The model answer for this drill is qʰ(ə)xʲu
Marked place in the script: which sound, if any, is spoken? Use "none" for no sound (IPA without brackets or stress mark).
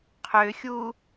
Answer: ø